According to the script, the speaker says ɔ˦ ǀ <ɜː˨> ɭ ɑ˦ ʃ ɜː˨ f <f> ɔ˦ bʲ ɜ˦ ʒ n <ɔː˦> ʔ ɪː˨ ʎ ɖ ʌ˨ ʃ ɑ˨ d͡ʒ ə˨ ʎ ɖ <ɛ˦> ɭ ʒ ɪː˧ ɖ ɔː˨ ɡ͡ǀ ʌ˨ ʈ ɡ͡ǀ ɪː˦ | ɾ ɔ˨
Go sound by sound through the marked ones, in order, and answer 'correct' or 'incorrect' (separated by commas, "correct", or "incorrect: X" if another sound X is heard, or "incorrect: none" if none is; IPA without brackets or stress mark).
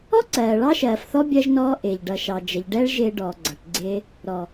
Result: correct, incorrect: θ, correct, correct